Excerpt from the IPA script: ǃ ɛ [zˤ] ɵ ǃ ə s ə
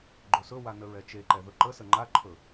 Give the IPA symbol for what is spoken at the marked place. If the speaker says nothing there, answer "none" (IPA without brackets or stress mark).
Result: ð